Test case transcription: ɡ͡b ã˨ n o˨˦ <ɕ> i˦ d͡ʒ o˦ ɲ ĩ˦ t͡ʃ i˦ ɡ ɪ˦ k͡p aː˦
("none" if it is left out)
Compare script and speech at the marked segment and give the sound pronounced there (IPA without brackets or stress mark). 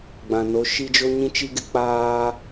ʃ